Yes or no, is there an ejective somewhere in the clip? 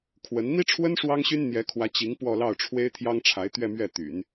no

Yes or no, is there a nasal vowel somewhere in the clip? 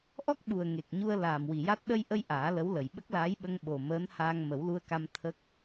no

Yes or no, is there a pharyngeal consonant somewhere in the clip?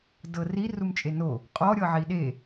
yes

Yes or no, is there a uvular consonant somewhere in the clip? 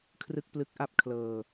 no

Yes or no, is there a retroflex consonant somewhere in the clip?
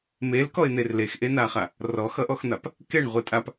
yes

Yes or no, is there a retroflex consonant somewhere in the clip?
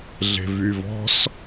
no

